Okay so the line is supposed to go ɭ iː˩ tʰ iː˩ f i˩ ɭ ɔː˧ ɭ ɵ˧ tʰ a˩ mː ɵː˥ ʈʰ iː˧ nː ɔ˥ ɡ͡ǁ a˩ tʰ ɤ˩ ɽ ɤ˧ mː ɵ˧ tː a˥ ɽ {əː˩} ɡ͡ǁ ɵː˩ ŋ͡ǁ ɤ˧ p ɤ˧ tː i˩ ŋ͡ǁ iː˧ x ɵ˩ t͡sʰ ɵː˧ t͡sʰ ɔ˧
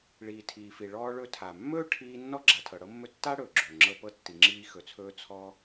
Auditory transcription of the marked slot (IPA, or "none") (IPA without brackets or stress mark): ɵː˩